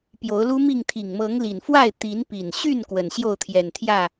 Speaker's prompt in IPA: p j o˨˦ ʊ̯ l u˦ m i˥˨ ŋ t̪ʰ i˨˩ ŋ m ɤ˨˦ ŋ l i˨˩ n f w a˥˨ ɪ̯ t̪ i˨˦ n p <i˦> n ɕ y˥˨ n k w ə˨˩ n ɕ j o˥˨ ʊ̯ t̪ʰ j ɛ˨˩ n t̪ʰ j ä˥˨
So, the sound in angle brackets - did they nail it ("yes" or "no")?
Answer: no